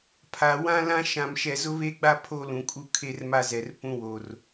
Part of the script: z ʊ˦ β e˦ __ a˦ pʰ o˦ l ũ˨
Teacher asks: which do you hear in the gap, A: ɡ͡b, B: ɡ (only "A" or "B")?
A